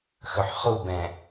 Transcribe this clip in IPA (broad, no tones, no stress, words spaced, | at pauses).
xɵħχubɛ̃